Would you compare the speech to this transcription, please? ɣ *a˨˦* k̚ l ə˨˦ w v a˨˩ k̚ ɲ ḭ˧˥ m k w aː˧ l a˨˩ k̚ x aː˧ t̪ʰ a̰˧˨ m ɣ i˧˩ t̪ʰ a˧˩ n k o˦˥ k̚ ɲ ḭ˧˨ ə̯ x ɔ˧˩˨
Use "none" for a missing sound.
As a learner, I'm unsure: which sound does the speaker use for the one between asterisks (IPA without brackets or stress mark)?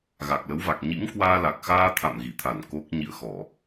a˨˩